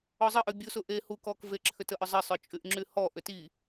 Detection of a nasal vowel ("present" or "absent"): absent